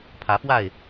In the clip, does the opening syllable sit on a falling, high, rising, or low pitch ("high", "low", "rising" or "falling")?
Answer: rising